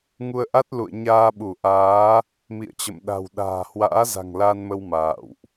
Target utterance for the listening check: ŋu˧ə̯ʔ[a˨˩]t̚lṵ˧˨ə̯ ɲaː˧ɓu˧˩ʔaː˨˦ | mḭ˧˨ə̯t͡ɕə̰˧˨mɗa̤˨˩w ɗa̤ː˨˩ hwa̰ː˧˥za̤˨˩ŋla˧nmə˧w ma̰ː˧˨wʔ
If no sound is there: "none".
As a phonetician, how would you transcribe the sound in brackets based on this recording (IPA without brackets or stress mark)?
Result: a˦˥